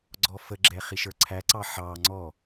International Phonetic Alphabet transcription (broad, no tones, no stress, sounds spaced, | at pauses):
ɡ͡ǀ ɔ f ə ɡ͡ǁ ɛ χ i ʃ ə˞ ǀʰ æ ǀ ɑ ħ ɑ ŋ͡ǀ ɔ